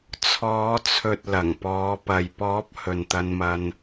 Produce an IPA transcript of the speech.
t͡sʰ ɔː˨˧ t͡sʰ ɵ˨ t̚ l ɐ˨˩ ŋ p ɔː˨˧ p ɐ˨ j p ɔː˨˥ p̚ h ɵ˨ n t̪ ɐ˧ n m ɐ˧ n

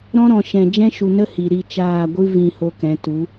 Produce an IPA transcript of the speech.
ɾ ɔ̃˦ ɾ ɔ̃˨ ʃ ɛ̃˨ d͡ʒ ɛ̃˦ ʃ u˨ n ə˦ h i˨ ɾ i˦˨ t͡ʃ aː˦˨ ɡʷ ɨ˦ v ĩ˧ h o˧ k ɛ̃˨˦ t u˨˦

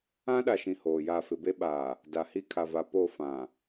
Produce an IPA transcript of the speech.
ã˦ ɗ a˨ ʃ ĩ˨ h oː˨ j a˦˨ f ɪ˨ b e˦ ɓ aː˨ | d a˨ h i˦ kʰ a˨ v a˨ p o˦˨ f ã˨

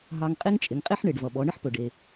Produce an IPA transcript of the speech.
ɦ ɑ˧ ŋ qʼ e˥ ŋ t͡ʃʼ ɪ˩˧ ŋ qʼ e˥ ħ ɳ e˩ ɖ v ʌ˩ ɓ ɔ˩˧ ɳ ɪ˥ ħ p ɵ˩ ɖ e˩

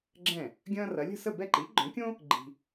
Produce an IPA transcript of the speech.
ɡ͡ǁ ɛ̃˥˩ | ɡʲ ɐ̃ː˥ r ɐ˩˥ lʲ ə̤˥˩ s ə˥˩ b ɛ˥˩ ǃ i˩˥ ɡ͡ǃ œ̃˩˥ kʲ õ˥ | ɡ͡ǃ i̤˧

